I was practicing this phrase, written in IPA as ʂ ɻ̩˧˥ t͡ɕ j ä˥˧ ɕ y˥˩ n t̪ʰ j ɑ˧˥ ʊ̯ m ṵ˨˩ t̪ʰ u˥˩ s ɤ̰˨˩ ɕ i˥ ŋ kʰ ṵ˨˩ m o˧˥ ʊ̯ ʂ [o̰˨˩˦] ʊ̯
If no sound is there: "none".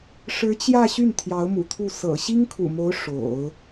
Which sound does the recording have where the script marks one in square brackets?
o̰˨˩˦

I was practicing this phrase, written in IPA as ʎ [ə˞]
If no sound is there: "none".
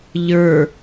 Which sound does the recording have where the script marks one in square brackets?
ə˞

